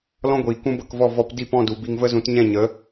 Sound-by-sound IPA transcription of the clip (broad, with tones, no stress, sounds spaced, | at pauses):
l ɔ̃˦ ɡʷ iː˨ k ũ˦ b ə˧ k v ɔ˦˨ v ɔ˦ p d i˦˨ p ɔ̃˦˨ d u˨ b i˧ ŋ v ə˦ z ũ˨˦ t ɲ ɛ̃˦˨ ɲ ə˨˦